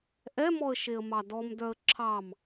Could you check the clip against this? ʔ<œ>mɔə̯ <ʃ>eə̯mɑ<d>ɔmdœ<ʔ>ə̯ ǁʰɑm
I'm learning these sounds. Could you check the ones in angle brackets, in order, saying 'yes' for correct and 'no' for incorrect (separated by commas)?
no, yes, yes, no